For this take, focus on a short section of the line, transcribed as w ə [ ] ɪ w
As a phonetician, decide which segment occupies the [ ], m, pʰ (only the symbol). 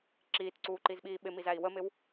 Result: m